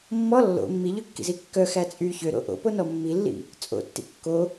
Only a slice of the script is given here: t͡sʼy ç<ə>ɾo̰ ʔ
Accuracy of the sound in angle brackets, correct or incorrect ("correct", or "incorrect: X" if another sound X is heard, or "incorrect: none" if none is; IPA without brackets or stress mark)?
incorrect: ø